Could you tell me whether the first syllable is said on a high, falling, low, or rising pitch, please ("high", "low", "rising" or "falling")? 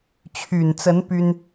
low